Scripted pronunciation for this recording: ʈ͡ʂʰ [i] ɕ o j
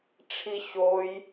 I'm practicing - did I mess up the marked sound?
no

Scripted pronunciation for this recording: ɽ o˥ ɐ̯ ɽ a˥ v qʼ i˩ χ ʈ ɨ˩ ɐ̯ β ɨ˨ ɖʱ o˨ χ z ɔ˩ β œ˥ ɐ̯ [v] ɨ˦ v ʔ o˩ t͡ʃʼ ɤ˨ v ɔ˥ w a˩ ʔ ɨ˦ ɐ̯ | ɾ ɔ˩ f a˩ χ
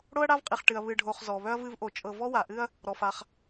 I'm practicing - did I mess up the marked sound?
no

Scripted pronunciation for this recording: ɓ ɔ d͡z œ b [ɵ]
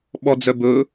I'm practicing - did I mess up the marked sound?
no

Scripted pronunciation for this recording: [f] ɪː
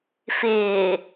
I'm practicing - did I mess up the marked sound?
no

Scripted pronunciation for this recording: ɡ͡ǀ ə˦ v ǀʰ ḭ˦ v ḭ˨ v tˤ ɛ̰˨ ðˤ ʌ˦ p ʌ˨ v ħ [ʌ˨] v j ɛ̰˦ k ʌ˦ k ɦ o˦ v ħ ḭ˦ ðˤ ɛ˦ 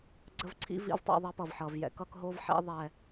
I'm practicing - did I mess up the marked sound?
no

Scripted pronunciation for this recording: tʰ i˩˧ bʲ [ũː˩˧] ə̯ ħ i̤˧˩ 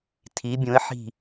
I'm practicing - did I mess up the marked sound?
yes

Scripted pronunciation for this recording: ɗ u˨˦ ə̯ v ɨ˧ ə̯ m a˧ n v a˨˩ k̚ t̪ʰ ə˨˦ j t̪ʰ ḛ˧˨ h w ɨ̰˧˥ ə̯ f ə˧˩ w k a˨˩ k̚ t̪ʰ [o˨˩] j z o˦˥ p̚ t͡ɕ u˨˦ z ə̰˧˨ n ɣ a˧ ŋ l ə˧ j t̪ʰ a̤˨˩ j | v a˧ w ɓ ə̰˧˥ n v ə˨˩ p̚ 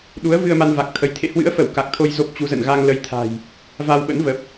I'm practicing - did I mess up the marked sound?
yes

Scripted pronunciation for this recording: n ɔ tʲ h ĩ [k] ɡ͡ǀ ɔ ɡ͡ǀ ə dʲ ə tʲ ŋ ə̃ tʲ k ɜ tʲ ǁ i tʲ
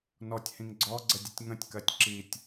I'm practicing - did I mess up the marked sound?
yes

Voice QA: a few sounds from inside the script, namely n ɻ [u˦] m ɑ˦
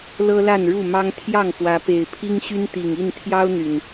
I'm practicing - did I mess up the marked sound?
yes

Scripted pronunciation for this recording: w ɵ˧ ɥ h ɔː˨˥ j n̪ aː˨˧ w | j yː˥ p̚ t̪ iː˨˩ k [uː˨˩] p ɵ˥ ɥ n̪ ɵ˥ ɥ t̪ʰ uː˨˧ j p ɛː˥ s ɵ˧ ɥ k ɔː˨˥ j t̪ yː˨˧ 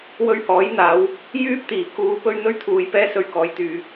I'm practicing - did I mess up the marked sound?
yes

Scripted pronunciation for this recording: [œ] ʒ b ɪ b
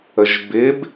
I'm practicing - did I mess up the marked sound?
yes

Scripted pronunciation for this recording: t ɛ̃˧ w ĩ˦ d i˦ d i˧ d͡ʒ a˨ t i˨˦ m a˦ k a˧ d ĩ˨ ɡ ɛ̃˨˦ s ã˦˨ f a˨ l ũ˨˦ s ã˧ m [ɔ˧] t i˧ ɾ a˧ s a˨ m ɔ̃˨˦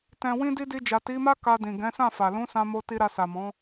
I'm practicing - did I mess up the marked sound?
yes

